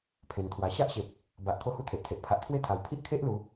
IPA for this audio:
pʰ ẽ˨˩ n t̪ʰ w a˨˩ ɕ a˦ ʔ ɕ e˨ p̚ | b a˨ ʔ kʰ o˦ h u˦ t̪ʰ e˨ ʔ t̪ʰ e˨ ʔ pʰ a˨ ʔ t̪ʰ w e˦ t̪ʰ a˨˩ w pʰ i˦ ʔ kʰ e˦ ʔ l u˨˦

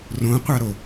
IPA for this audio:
r õ qʷ a ɾ o

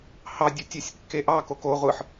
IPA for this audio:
h ɑ dʲ ɯ tʲ e sʲ kː e ʔ ɑ k o k o ʁʷ ɯ ħ

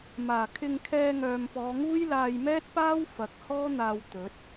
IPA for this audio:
m aː˨˩ kʰ ɪ˧ ŋ kʰ ɛː˧ ŋ œː˨ m p ɔː˨˧ ŋ uː˥ j l aː˧ j m ɛː˥ t̚ p aː˥ w f ɐ˨˥ k̚ h ɔː˥ n̪ aː˧ w t̪ ɵ˨˥ t̚

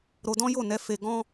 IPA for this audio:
ɾ o˧ d ɔ̃˦ j o˦˨ n ɛ˧ f e˧ ɡ ɔ̃˦

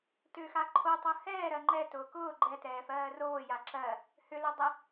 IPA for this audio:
t ʏ x a ǃʰ o tˤ ʊ h ɛː ɾ ɜ ŋ͡ǃ ɛ t ʊː k ʊː ɡ͡ǃ ɛ t ɛː f ɜː r oː j a ǁ ɜ | h ʏ l o dˤ ɛ

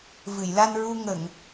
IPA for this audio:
v ɨ˨˩˨ j l a˧ n ɹ u˧ ŋ ə˨˩˨ ŋ

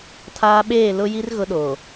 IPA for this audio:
tʰ aː˦ ɓ eː˦˨ l ʊ˦ j i˦ r ɣ ʊ˦ ɗ oː˨

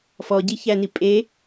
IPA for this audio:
f ɔ ɟ i ç æ n i pʼ e

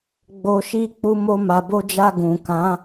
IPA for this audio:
ɡ͡b o˨ ʃ i˧ k͡p u˧ m o˧ m a˨ b o˧ d͡ʒ a˧ ɡ ũ˨ k ã˨˦

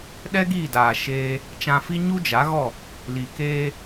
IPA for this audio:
ɗ ɛ˦ ɡ iː˦˨ d aː˨ ʃ eː˧ | t͡ʃ ã˧ f i˦ ɲ u˦ d͡ʒ a˨˦ ɣ ɔ˦˨ | l i˨ k eː˧

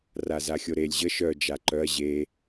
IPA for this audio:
r a z a xʲ o ɾ e lʲ ʑ ə ʃ œ d͡ʒ a ǃ œ ɐ̯ ʑ e

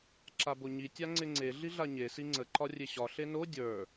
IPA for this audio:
ǁ a b o ɲ i tʲ a ŋ͡ǀ ɪ ŋ͡ǀ e ɮ i ɮ a ɲ e s i ŋ͡ǀ ə ǃ ɒ rʲ e ɕ ɒ ɬ e n o dʲ ə˞

